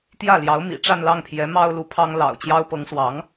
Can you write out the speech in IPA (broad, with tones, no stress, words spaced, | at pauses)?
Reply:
t̪jä˥˩ljɑ˧˥ʊ̯mḭ˨˩ ʈ͡ʂa˥˧nlɑ˥˩ŋpʰjɛ˧˥ mɑ˥ʊ̯lu˧˥pʰɑ˥ŋ lɑ̰˨˩ʊ̯t͡ɕjɑ˥ʊ̯ pɤ˧˥ŋswɑ˧˥ŋ